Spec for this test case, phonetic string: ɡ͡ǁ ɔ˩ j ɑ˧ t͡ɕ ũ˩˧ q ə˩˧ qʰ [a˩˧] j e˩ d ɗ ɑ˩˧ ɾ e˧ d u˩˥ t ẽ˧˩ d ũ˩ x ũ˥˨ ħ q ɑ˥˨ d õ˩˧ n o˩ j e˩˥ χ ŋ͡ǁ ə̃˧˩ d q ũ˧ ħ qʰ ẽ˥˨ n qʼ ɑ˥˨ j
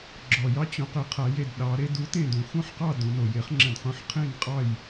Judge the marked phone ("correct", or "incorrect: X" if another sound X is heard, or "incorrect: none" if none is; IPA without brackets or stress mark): correct